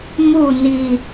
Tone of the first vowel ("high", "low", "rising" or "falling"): falling